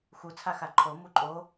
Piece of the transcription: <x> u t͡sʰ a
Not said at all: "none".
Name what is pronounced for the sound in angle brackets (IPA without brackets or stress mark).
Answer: x